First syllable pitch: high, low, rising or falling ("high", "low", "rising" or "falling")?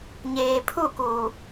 low